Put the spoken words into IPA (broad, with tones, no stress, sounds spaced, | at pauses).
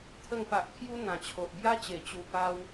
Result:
t̪ʰ ə˨˩ ŋ p a˨ ʔ kʰ j u˧ n̪ ã˨˩ t͡ɕʰ o˨ ʔ b j a˦ t͡ɕ e˨˩ t͡ɕ u˨˩ p a˧ w